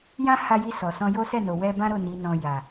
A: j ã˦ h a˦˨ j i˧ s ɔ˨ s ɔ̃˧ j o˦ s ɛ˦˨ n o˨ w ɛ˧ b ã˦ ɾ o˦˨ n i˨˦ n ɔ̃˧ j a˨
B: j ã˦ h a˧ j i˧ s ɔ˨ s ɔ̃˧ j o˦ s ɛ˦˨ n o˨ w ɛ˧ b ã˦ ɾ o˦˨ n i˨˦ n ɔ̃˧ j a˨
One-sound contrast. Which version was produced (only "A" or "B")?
B